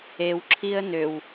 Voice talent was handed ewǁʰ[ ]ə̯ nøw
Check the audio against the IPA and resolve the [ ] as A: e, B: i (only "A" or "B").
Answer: B